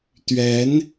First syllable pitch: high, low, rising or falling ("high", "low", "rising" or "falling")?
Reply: rising